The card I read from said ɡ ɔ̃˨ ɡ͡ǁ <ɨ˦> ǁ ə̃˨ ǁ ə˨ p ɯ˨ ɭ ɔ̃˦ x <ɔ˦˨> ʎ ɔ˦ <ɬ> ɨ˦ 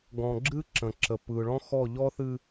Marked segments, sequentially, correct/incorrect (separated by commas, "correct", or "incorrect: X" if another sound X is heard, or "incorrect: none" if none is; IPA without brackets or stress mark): correct, correct, incorrect: θ